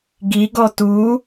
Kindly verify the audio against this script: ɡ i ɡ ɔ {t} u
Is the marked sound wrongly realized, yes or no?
no